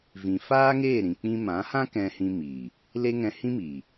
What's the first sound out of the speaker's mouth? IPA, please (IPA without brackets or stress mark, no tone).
v